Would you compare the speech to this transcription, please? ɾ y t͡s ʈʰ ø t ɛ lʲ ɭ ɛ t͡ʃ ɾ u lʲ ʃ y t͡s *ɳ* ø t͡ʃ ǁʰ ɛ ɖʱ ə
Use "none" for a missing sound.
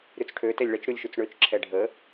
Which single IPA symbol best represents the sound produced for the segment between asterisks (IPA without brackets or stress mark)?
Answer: ɳ